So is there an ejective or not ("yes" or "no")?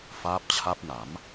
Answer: no